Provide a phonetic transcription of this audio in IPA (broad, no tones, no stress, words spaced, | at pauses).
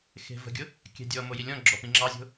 xe̤və̤ɡʲʊ | kʲɛ̤dʲɔmo jilʲɔ̃ɡ͡ǁɔ pĩŋ͡ǁɑzʲo̤